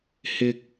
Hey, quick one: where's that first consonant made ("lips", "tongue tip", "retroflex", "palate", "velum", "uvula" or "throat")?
throat